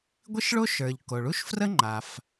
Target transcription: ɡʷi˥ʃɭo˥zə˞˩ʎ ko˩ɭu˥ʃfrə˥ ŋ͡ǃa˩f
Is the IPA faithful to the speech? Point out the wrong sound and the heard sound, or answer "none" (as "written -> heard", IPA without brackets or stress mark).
z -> ʃ